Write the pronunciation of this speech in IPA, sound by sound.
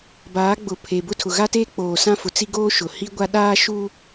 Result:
b aː˨˦ ɡ͡b ʊ˨ pʰ e˨ b ʊ˦˨ tʰ ʊ˨ ɣ a˦ t eː˦ k͡p oː˨ s ã˦ f ʊ˨ t͡s i˦ ɡ oː˦ ʃ ʊ˨ h i˦ ɡʷ a˦ ɗ aː˦ ʃ u˦

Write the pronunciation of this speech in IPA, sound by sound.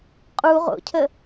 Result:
qʼ u ʁ o̰ cʰ ə

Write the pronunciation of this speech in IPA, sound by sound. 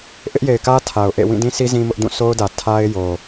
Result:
ʔ ɪ˦ ʔ j e˨ ɪ̯ k ä˦ tʰ a˨ ʊ̯ ʔ ḛ˦˨ w ĩ˦˨ d ĩ˦ sʰ i˦ z ĩ˦ m ʊ˦ ʔ d ũ˦˨ sʰ o˦ ʊ̯ d ä˨ tʰ a˦ ɪ̯ j o˨

